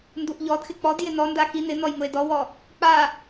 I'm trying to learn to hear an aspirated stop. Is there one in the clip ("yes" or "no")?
no